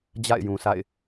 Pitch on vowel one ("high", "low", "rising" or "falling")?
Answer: falling